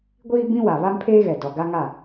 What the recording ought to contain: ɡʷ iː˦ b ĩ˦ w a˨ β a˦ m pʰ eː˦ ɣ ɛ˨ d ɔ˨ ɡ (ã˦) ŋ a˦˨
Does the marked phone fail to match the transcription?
yes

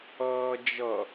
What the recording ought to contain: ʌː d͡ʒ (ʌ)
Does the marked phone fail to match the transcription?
no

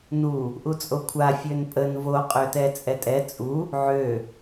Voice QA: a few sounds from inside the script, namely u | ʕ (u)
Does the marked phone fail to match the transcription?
yes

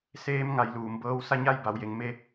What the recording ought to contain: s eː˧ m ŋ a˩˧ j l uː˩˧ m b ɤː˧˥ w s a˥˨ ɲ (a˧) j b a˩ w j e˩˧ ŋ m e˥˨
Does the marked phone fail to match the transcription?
yes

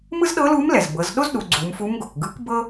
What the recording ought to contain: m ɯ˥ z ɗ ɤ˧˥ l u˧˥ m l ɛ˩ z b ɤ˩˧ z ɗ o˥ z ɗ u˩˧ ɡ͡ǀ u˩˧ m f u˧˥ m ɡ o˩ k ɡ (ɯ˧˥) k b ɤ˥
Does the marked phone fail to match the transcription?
no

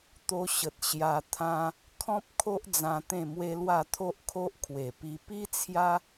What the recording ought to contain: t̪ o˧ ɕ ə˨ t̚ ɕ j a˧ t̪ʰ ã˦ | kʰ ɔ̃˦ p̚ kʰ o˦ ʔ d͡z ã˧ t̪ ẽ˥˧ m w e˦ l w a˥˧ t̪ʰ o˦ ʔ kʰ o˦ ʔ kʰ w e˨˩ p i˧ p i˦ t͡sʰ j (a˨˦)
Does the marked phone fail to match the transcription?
yes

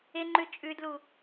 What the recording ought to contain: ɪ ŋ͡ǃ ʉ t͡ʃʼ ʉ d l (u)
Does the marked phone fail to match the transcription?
no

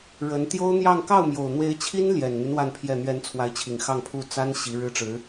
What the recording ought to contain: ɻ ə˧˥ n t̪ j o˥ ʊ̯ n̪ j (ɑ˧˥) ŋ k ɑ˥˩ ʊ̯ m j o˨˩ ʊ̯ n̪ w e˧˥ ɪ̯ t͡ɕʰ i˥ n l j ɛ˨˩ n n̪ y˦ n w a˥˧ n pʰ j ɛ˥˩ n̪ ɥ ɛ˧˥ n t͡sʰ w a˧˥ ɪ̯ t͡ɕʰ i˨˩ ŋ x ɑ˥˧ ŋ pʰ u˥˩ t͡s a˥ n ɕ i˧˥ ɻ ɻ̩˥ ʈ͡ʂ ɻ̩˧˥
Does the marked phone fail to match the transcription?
yes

